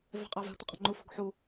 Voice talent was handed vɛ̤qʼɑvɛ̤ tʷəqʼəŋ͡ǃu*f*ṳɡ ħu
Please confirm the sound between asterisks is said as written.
yes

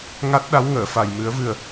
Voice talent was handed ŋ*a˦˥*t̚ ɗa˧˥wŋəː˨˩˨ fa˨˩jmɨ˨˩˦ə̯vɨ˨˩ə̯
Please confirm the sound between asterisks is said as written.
yes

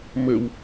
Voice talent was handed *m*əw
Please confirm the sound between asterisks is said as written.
yes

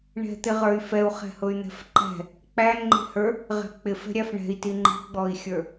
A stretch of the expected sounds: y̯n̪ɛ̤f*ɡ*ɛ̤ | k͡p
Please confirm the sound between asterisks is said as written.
no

